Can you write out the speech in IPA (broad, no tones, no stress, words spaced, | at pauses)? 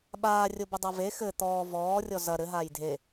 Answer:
ɓaːrʲobɘ dˤave xɘ t̪ɔː vɔːrʲɔ zɐ ɾɘ ɦaːjdʱe